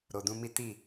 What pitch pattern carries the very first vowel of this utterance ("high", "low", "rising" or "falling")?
low